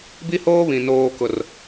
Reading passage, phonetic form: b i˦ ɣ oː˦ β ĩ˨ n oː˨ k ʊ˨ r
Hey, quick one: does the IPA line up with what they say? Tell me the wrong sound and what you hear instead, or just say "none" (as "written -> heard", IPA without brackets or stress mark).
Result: ɣ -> h